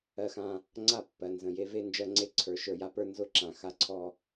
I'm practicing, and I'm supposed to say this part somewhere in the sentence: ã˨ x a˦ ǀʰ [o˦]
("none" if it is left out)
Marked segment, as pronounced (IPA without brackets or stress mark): ɔ˦